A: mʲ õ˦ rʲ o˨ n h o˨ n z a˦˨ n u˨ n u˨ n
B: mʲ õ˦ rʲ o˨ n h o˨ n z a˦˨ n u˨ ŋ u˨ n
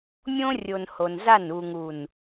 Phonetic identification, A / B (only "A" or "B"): B